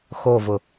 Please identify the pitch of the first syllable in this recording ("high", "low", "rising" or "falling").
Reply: falling